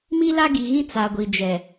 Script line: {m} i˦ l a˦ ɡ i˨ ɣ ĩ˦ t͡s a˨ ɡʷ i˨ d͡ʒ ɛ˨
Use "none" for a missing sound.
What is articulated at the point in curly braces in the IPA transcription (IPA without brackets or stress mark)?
m